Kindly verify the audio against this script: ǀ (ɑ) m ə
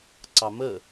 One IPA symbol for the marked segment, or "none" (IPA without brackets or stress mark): ɑ